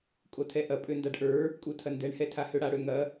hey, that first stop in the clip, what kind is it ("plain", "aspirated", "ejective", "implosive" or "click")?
ejective